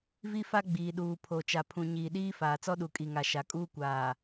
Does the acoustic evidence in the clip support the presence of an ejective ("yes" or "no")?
yes